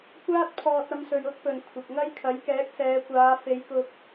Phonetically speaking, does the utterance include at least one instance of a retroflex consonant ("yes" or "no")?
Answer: no